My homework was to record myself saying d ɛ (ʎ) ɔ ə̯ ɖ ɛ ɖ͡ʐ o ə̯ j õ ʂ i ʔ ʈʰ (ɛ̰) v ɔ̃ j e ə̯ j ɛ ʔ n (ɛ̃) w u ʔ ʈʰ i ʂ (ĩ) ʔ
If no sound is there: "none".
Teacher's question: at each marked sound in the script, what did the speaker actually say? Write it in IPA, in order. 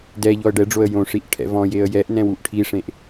ʎ, ɛ̰, ɛ̃, ẽ

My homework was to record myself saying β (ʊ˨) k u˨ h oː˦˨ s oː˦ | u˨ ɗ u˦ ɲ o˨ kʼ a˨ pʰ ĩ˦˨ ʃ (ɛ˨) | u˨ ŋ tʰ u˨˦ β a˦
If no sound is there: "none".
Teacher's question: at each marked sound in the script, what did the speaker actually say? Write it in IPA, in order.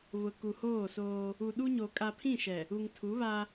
ʊ˨, ɛ˨

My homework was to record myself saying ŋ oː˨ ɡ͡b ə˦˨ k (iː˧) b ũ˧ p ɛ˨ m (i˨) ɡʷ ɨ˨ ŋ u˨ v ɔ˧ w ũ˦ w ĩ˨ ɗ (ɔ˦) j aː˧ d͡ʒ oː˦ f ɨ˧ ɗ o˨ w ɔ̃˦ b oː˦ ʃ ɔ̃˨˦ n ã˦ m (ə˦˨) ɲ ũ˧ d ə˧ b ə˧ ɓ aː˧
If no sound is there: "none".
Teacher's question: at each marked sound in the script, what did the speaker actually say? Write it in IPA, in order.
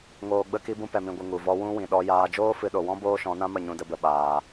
i˧, ĩ˨, ɔ˧, ə˦˨

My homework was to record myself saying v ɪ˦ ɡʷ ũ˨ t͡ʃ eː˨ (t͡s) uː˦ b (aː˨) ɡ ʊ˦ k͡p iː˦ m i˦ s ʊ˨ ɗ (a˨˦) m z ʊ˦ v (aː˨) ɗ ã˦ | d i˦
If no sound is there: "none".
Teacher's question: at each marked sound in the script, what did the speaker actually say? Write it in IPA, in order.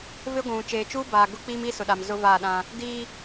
t͡ʃ, aː˨, a˨, aː˦˨

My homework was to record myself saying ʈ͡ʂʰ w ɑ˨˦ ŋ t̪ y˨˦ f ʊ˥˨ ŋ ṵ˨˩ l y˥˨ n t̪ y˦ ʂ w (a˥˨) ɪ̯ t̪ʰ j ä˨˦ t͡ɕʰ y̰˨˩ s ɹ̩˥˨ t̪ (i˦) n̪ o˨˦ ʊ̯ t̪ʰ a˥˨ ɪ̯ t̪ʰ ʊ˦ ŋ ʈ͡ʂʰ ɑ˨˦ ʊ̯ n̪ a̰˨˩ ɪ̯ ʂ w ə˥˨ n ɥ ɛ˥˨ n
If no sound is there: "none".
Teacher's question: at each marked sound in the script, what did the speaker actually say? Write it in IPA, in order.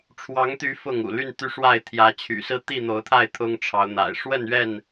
a˥˨, i˥˨

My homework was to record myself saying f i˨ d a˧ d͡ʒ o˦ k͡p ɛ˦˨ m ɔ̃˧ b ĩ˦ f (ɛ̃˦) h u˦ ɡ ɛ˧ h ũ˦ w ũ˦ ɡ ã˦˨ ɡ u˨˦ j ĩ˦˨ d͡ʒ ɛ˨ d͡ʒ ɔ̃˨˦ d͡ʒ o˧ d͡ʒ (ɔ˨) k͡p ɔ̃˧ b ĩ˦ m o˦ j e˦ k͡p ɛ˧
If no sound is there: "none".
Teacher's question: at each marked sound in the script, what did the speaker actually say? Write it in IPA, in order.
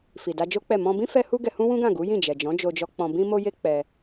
ɛ˦, ɔ˧

